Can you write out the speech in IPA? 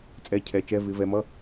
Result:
t͡sʼɛ˧˥˧cʰɛ˨˦t͡ʃɛ˧˥˧ vɪ˨˦vɛ˨˦ mʌ˧˥˧

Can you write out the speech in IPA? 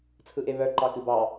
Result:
t͡sʰɯʔeβœ ǃɑkɨbɑ

